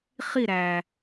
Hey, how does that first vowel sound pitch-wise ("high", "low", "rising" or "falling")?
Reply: falling